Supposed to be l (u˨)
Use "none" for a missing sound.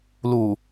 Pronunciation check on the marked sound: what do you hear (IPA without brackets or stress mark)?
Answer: u˨